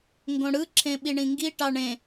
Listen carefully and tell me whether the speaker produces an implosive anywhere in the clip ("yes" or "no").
yes